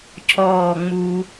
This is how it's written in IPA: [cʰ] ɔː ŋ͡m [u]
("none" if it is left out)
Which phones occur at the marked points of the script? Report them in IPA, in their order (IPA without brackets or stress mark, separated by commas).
cʰ, u